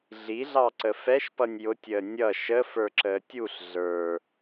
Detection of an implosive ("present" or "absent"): absent